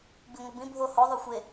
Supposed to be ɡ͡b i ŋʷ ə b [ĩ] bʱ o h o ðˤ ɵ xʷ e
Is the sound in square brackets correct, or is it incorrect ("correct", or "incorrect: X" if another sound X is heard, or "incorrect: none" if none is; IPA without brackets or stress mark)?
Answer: correct